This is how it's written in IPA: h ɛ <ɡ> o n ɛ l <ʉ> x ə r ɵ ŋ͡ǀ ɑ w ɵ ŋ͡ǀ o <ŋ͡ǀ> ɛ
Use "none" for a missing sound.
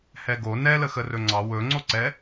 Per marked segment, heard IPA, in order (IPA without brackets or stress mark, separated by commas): ɡ, ə, ǀ